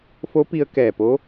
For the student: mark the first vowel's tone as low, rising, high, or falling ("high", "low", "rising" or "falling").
rising